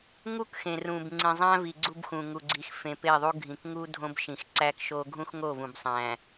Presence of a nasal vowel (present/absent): present